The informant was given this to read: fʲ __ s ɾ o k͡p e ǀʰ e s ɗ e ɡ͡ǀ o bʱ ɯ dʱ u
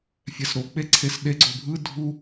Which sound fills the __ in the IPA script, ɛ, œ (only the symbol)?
ɛ